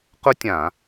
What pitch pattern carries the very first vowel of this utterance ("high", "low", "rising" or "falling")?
high